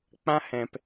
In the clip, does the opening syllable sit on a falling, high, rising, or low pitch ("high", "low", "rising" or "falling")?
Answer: high